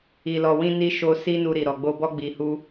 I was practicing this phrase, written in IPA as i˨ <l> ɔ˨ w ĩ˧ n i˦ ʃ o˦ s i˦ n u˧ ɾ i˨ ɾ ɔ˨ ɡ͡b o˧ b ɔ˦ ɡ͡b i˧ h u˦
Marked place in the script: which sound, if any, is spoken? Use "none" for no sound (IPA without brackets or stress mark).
l